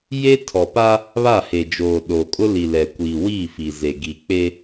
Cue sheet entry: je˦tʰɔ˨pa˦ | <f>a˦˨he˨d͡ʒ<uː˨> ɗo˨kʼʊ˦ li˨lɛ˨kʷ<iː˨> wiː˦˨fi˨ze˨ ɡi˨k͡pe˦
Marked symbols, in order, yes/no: no, no, yes

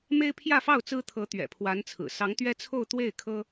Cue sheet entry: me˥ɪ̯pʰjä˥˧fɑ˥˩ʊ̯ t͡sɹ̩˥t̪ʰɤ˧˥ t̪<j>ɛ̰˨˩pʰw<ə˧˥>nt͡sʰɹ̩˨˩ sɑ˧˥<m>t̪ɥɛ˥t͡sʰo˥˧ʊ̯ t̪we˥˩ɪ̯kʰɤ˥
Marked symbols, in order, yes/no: no, no, no

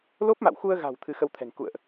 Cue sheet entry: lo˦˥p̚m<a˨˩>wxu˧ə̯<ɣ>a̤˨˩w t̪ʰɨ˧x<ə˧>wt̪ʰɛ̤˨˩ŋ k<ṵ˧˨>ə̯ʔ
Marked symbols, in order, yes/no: no, yes, yes, yes

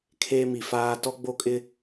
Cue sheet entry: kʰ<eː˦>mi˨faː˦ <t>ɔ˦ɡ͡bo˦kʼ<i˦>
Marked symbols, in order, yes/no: yes, yes, no

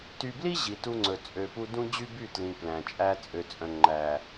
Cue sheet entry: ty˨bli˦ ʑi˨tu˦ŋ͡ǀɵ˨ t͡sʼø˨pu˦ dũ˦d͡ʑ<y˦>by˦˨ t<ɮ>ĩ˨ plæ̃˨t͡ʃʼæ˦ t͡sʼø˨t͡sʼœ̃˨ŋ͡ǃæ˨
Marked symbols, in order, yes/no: yes, no

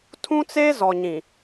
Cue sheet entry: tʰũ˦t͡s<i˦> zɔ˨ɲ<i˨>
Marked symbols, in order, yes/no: no, no

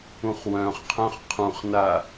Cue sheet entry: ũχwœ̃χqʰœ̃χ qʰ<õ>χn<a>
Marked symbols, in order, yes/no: no, yes

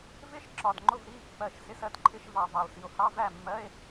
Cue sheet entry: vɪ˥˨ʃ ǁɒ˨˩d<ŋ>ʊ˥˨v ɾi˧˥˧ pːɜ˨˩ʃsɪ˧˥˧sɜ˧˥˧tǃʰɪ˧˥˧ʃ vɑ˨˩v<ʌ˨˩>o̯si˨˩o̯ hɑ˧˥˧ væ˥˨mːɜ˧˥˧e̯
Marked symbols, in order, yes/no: no, no

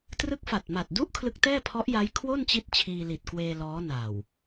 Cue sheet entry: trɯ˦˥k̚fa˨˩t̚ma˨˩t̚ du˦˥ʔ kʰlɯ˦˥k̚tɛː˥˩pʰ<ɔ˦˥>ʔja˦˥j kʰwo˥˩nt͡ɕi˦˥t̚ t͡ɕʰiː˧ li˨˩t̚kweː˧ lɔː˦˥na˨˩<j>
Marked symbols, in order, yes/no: yes, no

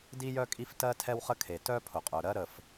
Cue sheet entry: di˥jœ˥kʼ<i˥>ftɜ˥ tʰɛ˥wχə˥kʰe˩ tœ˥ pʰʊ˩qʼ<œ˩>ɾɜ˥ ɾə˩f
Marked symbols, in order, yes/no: yes, yes

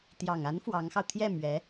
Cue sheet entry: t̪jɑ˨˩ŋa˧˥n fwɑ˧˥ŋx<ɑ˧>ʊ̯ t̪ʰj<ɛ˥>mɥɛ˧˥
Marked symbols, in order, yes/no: yes, no

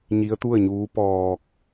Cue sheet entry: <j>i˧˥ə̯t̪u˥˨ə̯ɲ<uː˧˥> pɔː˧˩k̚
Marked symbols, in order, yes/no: no, yes

